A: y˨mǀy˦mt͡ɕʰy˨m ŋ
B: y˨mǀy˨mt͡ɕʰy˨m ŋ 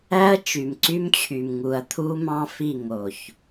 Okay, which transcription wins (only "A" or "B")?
A